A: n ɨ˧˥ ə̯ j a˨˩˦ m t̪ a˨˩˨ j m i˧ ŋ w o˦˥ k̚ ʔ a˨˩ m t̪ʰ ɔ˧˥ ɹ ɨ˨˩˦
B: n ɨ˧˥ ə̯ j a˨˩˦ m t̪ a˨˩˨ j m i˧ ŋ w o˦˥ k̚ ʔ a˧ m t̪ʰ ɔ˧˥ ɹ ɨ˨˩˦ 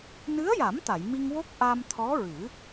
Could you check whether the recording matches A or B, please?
B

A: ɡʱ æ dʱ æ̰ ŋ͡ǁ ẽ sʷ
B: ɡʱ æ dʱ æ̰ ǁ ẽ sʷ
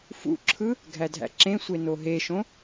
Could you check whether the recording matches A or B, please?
B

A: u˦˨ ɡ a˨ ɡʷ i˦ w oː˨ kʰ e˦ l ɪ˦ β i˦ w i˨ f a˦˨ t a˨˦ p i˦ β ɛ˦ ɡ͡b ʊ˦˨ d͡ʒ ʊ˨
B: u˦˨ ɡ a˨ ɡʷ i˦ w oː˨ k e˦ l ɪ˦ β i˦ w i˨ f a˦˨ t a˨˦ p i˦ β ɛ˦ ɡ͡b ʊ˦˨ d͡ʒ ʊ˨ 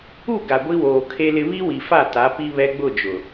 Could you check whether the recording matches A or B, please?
A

